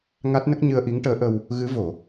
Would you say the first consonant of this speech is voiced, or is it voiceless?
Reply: voiced